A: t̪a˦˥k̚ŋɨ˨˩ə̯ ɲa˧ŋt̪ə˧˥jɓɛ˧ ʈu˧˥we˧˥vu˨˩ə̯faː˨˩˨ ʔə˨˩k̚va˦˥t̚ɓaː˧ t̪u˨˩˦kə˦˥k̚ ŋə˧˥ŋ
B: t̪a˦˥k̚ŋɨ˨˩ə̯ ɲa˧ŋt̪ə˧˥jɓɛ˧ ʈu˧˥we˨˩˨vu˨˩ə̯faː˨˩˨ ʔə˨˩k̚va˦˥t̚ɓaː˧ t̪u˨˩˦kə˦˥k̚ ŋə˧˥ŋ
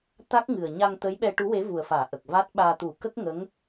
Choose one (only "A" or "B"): A